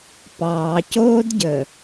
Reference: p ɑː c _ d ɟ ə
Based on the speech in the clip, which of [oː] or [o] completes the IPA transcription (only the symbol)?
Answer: oː